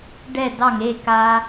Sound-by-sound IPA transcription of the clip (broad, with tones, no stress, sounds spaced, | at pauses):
ɖ ɛ˧˩ d ɑ˧˩ ŋ e˥˧ k a˧